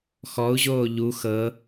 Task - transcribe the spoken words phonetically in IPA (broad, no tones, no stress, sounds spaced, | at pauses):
x ɔ u̯ ʑ oː ʎ u x ɤ